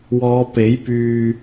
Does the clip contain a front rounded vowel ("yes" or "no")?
yes